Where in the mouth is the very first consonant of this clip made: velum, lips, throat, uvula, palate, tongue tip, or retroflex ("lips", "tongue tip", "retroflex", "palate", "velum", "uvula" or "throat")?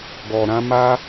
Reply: velum